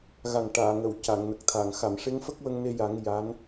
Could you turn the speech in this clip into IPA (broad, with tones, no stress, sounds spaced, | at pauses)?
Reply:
ɣ a˨˩ ŋ ʈ aː˨˩˨ ŋ ə˨˩˨ w c a˨˩˨ ŋ n ə˨˩ k̚ t̪ʰ a˨˩˨ ŋ x a˨˩˨ m ʂ e˧˥ ŋ f ə˦˥ k̚ w ə˧ ŋ n e˧ j a˨˩˦ ŋ j a˧˥ n